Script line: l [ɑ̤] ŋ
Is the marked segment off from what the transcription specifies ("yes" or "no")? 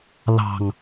no